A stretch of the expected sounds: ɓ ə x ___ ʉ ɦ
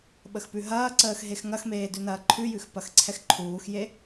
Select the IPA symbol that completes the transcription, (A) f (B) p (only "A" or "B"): B